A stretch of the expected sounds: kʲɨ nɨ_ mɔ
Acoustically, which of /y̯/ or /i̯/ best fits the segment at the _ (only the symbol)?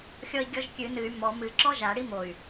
y̯